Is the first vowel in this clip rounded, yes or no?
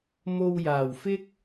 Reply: yes